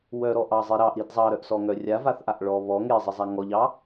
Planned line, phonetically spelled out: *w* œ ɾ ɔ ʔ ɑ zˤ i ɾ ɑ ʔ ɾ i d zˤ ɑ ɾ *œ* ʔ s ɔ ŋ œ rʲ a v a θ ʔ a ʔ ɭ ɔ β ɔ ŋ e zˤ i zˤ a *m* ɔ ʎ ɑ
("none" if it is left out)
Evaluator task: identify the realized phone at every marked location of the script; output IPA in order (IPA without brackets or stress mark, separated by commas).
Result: w, œ, ŋ